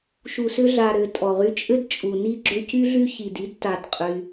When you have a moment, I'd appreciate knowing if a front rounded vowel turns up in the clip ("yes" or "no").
yes